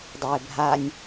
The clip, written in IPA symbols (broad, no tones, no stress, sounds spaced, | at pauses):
dˤ a e̯ bʱ a nʲ